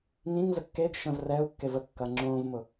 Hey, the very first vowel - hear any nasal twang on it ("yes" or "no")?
yes